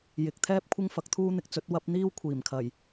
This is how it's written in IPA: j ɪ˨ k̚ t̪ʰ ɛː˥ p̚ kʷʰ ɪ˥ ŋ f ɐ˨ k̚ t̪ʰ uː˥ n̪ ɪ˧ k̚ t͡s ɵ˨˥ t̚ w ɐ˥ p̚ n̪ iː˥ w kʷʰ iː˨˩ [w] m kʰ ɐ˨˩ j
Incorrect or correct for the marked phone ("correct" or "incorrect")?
incorrect